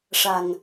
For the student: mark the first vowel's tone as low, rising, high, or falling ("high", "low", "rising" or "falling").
low